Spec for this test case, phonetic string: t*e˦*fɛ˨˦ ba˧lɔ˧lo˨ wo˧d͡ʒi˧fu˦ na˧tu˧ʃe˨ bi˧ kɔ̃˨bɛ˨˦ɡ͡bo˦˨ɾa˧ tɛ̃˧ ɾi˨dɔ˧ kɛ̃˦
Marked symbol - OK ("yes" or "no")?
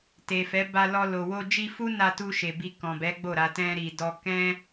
no